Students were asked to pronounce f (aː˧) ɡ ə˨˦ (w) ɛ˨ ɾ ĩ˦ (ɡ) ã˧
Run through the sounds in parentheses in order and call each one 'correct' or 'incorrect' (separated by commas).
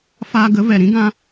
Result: correct, incorrect, correct